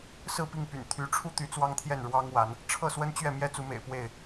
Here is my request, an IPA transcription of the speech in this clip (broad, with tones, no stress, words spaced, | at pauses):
sɹ̩˥˨pi˥˨ŋpy̰˨˩n t̪ʰy˨˦ʈ͡ʂʰu˦t̪y˨˦ t͡swɑ˦ŋt̪ʰjɛ˥˨n ɻwɑ˦ŋwa˨˦n | ʈ͡ʂʰɤ˥˨swə˦nt͡ɕɥɛ˥˨mjɛ˦ t͡su˨˦mḛ˨˩ɪ̯ pwe˥˨ɪ̯